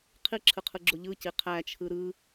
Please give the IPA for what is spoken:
qʰiǁʰɯqʰɯɡ͡ǁo ʎɯci qʰæt͡ʃʰɯ ɾɯ

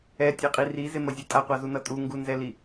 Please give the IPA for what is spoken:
ɛtʲaqʼi rizemʌzʲʌ tʼaqʷazunʌ tʼuŋɡunzɛli

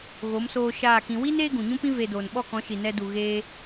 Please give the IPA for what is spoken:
ɣo˨˦msoː˧ ʃaː˦˨kĩ˧ wi˦n eː˦ɡũ˨ɲũ˦pĩ˦ ve˧doː˨n ɓɔ˦˨kɔ̃˨˦ʃi˨nɛ˧ du˧ɣeː˦

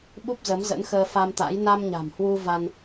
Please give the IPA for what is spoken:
ɓu˦˥p̚zə˨˦mzə̰˧˥nxəː˧ fa˧mt̪a̰˧˥j na˧mɲa̤˨˩mhwu˧ va˧n

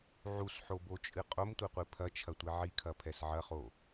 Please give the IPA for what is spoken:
ʕusħobot͡ʃʼɨ qʼomtʷeqʷi pʰɐt͡ʃʰɐtʷi ʕikʰɐpʰɛs ʕɐχo

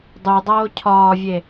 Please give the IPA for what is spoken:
dˤudˤoː cʰɒːvʲe

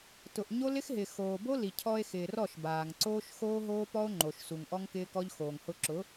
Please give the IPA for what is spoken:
tʊ˨ʔɲo˦lɪ˦x ɦɪ˨xoː˨bo˦ li˨cʰɔ˧e̯xɪː˨rɔ˦˨ʃ baː˨ŋǀoː˦ʃ xoː˦ɦoː˦pɔ˦o̯ ŋ͡ǃo˨ʃsu˨ŋ ʔɔ˦ŋkɪː˦kɔ˦ʎ xoː˨ŋhʊ˧ǁʊ˨˦

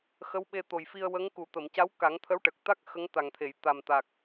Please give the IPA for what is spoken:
xə˧˥wɓe˧t̪o˨˩jfi˧ə̯ wə˧˥ŋ ku˨˩˨t̪ə˨˩˨mca˧˥w ka˨˩˦ŋt̪ʰə˧˥wʈə˨˩k̚t̪a˦˥k̚ xə˧˥ŋt̪a˨˩ŋt̪ʰe˨˩˨j t̪a˨˩mt̪a˨˩k̚

